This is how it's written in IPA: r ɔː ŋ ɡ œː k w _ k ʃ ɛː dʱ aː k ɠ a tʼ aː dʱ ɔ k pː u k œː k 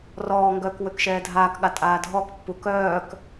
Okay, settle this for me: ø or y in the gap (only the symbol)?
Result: ø